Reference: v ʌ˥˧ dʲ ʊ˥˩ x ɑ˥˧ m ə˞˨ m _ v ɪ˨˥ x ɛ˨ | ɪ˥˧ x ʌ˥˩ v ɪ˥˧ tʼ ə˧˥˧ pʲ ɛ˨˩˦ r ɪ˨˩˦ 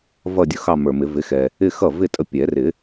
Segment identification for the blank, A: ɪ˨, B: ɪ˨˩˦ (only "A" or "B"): B